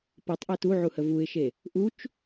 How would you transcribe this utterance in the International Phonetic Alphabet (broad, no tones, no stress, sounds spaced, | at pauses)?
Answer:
p ɤ tˤ ʔ ɛ t u ʕ u h ə v u ɪ̯ ʃ e | ʔ u t͡ʃ